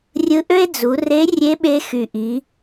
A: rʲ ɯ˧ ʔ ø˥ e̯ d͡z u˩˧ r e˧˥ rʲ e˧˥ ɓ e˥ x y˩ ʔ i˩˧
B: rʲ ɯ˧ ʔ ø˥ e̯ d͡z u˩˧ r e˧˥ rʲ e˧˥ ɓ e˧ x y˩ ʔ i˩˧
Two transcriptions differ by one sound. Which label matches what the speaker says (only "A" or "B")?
B